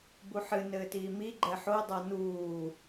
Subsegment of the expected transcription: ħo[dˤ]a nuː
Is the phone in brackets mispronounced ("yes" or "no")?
no